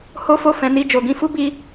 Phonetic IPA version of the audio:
h o˦ f o˦˨ f ɛ̃˨˦ n i˧ d͡ʒ o˨ ɡ ĩ˧ f u˦ b i˦

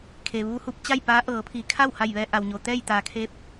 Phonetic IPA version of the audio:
kʰ e˩ ʋ uː˧ h u˧ p̚ t͡ɕ a˥˨ j p aː˧˥ ʔ ɤː˩˧ pʰ iː˩˧ kʰ a˥˨ w h a˧˩ j ʋ ɛː˧ ʔ a˩ w ɲ o˩ t̪ ɛː˥˨ j t̪ aː˩ kʰ e˧˥ p̚

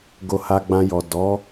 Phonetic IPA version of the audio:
ɡ o˧ h a˧ ɡ͡b ã˧ j ɔ˨ d ɔ˨˦

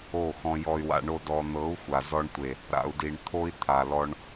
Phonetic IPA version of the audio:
o˦˨ x ɔ̃˧ j ɔ˨ y̯ w a̰˨ ɳ o˧ d ɔ˨ n̪ ɤ˨˦ u̯ xʷ a˨ z ɔ˧ ɳ tʷ e˨ | ɾ a̰˨ u̯ d i˨ ɳ t̪ʰ o˦ i̯ t̪ʰ a˨ l ɔ˧ ɳ

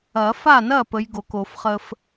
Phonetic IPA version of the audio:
ɐ˨˩˦ f a˥˩ n ɐ˥˩ p ə˨˥ j ɡ o˨˩˦ k o˨˩˦ f χ ə˦ f

